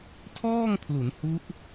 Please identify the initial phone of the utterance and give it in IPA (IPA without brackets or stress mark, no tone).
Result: tʰ